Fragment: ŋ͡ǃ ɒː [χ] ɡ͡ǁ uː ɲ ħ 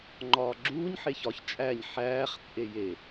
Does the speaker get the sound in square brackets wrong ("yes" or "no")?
yes